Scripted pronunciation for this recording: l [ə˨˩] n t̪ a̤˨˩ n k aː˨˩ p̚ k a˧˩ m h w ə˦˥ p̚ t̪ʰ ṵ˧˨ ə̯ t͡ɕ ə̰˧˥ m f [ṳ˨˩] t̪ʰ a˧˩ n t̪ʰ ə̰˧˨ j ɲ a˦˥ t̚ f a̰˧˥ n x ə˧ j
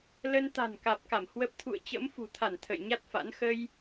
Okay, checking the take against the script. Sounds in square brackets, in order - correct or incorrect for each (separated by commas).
incorrect, correct